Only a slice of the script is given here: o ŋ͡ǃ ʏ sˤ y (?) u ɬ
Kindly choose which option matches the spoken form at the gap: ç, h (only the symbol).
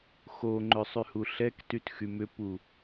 h